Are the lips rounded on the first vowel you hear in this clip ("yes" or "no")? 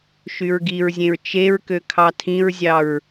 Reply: yes